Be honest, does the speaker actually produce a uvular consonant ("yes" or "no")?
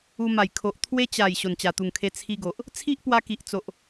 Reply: no